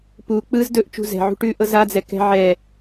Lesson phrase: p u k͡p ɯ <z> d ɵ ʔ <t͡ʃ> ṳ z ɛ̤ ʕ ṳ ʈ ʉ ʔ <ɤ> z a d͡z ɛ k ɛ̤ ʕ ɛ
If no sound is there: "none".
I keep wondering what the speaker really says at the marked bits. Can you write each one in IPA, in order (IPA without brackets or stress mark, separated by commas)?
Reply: z, t͡ʃ, ɤ